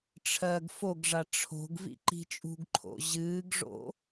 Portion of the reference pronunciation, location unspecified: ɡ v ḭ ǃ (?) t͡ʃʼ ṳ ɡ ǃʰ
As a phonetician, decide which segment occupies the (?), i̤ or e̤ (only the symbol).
i̤